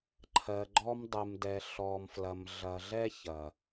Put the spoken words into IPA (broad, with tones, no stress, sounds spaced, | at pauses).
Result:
ǃʰ ɜ˨ ɡ͡ǃ ɔ˧ m dˤ ɨ˨ m d ɛ˨ ɬ ɔ˨ m f l ɐ˨ m ɮ ɐ˨ ɮ ɛ˧ ç ɐ˨